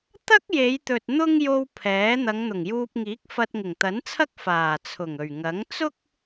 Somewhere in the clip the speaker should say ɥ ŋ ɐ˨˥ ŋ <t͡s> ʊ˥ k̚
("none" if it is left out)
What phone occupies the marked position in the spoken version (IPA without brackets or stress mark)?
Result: t͡s